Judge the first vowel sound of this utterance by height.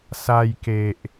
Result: low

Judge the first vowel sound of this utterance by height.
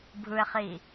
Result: high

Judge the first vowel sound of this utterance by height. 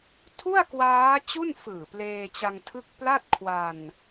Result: high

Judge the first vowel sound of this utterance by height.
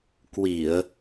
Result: high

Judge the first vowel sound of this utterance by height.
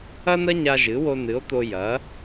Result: low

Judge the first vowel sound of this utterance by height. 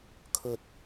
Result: mid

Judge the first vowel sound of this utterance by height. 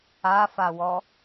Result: low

